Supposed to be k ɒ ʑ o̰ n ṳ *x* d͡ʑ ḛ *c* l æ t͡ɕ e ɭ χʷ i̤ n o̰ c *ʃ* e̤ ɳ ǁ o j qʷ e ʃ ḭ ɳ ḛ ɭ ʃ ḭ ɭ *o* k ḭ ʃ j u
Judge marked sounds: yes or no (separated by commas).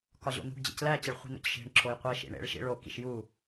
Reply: no, yes, yes, yes